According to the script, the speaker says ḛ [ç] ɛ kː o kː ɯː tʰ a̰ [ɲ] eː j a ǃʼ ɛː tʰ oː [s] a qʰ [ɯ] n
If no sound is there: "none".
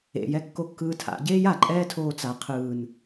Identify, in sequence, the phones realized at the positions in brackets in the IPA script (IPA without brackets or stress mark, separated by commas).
j, ɟ, t͡s, ɯː